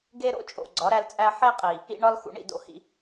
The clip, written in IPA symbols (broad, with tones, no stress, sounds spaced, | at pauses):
ɡ e˦ ɾ o̰˦ t͡ʃʼ o̰˨ ɡ͡ǀ ɒ˨˦ ɾ æ˦ l t͡sʼ æ˦ ħ e˦ qʼ i˨ | ḭ˦ ɳ ɒ˦ l x ṵ˨ ɳ ḭ˨ d o̰˦ h ḭ˦